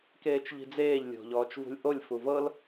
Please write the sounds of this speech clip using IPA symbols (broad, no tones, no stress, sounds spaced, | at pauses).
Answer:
k eː t͡ʃ ʎ i̤ d͡z eː ʎ lʲ o̤ ʎ ɔː t͡ʃ v ṳ lʲ ʔ o lʲ f u v ɤ l